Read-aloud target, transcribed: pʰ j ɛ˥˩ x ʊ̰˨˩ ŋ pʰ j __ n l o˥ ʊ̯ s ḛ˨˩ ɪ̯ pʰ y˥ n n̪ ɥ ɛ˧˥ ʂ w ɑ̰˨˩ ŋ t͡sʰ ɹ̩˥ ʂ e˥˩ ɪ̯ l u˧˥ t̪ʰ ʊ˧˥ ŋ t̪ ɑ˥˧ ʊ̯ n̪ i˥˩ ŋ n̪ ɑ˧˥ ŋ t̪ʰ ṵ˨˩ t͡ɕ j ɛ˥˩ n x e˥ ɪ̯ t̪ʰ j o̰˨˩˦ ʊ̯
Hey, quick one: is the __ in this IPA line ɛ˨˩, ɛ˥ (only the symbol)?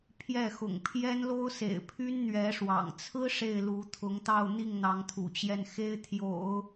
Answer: ɛ˥